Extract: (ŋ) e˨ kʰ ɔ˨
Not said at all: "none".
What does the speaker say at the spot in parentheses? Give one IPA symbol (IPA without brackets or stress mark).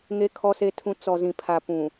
ŋ